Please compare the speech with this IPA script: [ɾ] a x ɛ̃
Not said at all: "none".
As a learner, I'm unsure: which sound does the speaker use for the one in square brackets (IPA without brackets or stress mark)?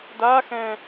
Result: d